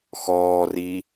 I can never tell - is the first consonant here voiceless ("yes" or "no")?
yes